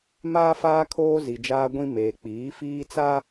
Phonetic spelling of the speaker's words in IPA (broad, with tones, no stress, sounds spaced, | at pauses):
m aː˦ f aː˦ kʰ oː˦ z i˨ d͡ʒ aː˦ ɡʷ ĩ˦ m eː˨ k͡p iː˨˦ f iː˦ t͡s a˦